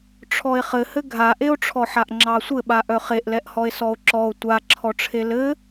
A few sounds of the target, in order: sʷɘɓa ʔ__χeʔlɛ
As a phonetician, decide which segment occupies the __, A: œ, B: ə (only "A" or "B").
A